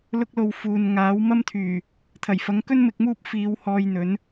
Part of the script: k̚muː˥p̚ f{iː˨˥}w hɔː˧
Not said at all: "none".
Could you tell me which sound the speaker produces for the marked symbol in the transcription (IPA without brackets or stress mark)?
iː˨˧